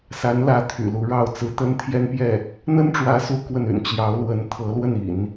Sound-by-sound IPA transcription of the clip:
s a˧˥ n l ä˧˥ t̪ʰ y̰˨˩ l u˧˥ ɻ ɑ˥˩ ʊ̯ t͡s ɹ̩˧˥ t̪ ə˥ n t̪ʰ j ɛ˥ n p j ɛ˥˩ | n̪ ə˥ n ʈ͡ʂ w ä˧˥ s u˧˥ k w ə˥˩ n y̰˨˩ n t͡ɕ j ɑ˧˥ ʊ̯ l w ə˧˥ n t̪ʰ ɤ˧˥ l w ə˥˩ n ḭ˨˩˦ n

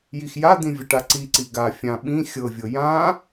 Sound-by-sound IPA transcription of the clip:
j i x j a d̪ ĩ vʲ ə ʈ a ǀ i ǀ i ɡ a fʲ ã ɓ ĩ xʲ ɤ vʲ ɤ j ã

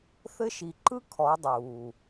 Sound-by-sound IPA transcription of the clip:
θ ɘ˦ ʃ i˨ ǃ ɯ˦ kʰ ɔ˨˦ dˤ uː˨

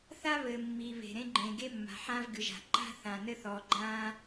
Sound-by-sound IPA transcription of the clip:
θ a˥ β ɘː˩ mː i˩ β e̤˩ ɾ ẽ˥ ɡ͡ǃ ẽː˩ ɡ e˥ mː a̤˩ ħ ãː˥ v ɡ ɨ˩ ʒ a̤˩ ǃ a̤˥ θ ã˩ n ɘ˥ θ ɔː˩ ɡ͡ǃ ãː˥

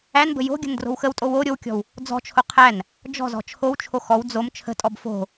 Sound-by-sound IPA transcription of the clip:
æ n b ə̤ j o̤ ɡʲ ə̤ n d r o̤ w x ə w tʼ o w o ɾʲ o w kʲ ɔ̤ w | d͡z ɔ̤ t͡ʃʰ o qʰ æ n | d͡ʒ ɔ̤ z ɔ̤ t͡ʃʰ o w t͡ʃʰ o x ɔ w d͡z o m t͡ʃʰ ə̤ tʼ ɔ b f o̤

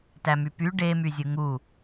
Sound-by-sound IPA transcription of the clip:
t æ m y p y ɖ e m y zʲ ɯ ŋ u

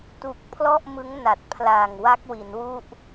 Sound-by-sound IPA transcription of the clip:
t u˨˩ k̚ pʰ l ɔ˥˩ ʔ m ɯ˦˥ ŋ n a˨˩ t̚ pʰ l aː˨˩ ŋ w a˦˥ k̚ w i˩˦ n w u˥˩ ʔ

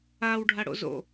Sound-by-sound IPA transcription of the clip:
a w ɖʱ a ɽ o̰ z o̰

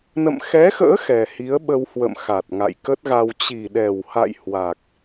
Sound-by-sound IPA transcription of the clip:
n ə̰˧˨ m x ɛ˨˦ x ə̰ː˧˥ x ɛ˨˩ h i˨˦ ə̯ ɓ ə˧ w h w ə̰˧˨ m x a˨˩ t̚ ŋ a̰˧˨ j k ə˦˥ t̚ ɣ a˧ w t͡ɕ i˨˩ ɗ ɛ˨˩ w h a̰˧˨ j h w a˨˩ k̚

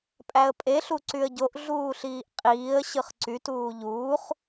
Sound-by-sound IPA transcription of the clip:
pʼ æ ə̯ pʼ e ɬ u ǀ y ə̯ ɟ o ʔ ɮ uː ɬ iː ʔ qʼ iː ə̯ ɕ ɯ χ ǀ y t uː ʎ uː χ

